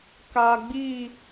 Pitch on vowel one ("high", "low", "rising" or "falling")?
low